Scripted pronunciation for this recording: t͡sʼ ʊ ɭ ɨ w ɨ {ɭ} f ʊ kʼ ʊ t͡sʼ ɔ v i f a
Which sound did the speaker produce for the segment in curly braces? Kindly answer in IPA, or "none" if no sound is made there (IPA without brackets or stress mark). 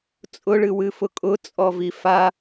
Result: none